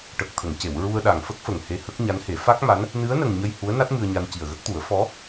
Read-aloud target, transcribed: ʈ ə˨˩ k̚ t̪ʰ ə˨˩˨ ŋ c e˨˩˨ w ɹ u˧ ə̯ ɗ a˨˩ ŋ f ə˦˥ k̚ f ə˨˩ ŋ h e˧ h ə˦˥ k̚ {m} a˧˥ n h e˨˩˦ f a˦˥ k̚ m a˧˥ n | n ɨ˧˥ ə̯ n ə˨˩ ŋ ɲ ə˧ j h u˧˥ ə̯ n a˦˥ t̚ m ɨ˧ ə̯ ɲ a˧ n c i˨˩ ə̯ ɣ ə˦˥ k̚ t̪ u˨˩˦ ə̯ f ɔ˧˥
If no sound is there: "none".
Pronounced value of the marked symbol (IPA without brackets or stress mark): ɲ